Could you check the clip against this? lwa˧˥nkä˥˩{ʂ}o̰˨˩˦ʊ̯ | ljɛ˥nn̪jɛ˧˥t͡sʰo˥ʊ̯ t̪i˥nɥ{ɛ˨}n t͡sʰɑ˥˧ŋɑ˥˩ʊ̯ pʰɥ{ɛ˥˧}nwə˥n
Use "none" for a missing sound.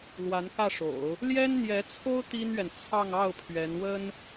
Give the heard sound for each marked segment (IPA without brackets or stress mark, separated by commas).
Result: ʂ, ɛ˨, ɛ˧˥